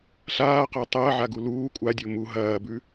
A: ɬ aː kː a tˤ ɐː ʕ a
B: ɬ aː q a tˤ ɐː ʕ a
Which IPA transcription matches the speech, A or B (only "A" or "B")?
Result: B